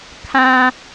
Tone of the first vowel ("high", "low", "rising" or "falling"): high